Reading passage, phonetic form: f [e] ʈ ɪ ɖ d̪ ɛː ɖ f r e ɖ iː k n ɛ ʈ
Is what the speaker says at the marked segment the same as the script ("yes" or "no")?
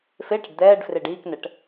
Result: yes